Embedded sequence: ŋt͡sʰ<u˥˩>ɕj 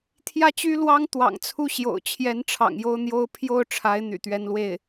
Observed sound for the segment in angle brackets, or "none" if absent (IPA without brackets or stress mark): u˥˩